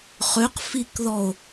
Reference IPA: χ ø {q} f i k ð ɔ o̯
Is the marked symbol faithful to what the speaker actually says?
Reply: yes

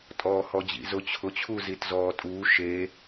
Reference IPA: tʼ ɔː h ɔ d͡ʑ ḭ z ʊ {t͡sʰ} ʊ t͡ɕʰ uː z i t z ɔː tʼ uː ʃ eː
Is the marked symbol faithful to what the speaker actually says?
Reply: no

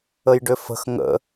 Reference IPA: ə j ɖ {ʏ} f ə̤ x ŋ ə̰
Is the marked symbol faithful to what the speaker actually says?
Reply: yes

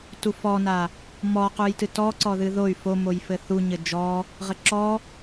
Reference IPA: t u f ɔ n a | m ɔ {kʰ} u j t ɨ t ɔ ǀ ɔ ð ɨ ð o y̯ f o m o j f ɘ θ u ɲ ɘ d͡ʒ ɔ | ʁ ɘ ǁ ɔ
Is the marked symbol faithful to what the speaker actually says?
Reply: no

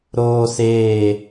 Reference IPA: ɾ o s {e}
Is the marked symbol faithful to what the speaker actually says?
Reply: yes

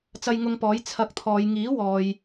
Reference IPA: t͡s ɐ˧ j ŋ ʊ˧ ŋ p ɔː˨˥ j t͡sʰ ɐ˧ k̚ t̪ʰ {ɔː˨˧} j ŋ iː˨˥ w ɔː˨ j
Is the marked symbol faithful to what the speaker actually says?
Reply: yes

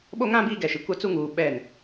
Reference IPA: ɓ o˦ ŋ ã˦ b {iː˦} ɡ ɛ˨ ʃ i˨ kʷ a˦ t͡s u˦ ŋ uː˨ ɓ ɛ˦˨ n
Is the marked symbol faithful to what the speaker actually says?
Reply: yes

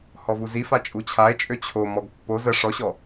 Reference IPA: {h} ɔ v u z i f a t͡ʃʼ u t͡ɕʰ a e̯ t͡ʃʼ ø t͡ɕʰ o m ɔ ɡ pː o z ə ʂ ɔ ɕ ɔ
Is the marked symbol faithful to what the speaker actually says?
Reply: yes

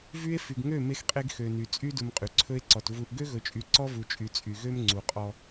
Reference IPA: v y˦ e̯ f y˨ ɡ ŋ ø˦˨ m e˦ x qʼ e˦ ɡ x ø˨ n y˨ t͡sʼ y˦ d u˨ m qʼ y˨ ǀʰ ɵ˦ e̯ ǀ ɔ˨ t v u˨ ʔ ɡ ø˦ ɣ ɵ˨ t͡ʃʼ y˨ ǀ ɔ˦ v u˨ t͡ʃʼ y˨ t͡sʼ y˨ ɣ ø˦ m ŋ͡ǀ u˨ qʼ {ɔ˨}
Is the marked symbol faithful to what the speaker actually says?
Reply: no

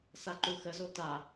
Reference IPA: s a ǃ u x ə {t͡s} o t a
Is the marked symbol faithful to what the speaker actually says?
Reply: no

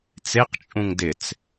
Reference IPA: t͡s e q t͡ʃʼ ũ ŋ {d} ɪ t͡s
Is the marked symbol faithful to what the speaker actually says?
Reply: yes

